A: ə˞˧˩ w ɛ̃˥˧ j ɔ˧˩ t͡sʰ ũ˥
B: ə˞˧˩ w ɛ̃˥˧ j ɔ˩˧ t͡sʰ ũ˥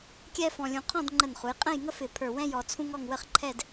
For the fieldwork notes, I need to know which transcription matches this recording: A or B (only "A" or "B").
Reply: B